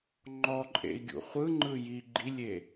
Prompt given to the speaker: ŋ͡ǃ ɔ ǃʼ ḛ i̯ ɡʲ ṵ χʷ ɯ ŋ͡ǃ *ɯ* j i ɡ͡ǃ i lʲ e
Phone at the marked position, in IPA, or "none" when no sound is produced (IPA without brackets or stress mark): ɯ